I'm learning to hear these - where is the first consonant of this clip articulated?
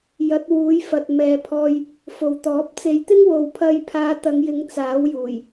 palate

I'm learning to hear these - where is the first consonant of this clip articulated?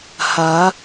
throat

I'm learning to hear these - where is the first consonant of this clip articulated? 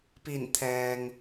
lips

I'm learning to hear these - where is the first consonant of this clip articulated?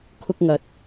velum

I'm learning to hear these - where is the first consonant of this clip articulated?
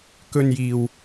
velum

